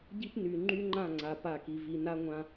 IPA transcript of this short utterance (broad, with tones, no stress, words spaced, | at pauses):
ɟi˦pny˨ ŋ͡ǃy˦ŋ͡ǃã˦˨ŋ͡ǀa˨ pa˦˨ki˨ vi˨na˦ ŋʷã˦